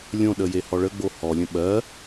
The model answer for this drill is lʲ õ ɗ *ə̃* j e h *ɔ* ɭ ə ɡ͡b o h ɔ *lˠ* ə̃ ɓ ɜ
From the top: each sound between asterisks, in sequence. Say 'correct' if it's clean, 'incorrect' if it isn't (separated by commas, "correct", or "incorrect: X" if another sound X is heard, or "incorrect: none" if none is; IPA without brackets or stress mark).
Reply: incorrect: ə, correct, incorrect: lʲ